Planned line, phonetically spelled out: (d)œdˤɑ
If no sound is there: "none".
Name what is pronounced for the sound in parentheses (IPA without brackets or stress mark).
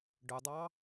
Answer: ɖ